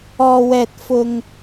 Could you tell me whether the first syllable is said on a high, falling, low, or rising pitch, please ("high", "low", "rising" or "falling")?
low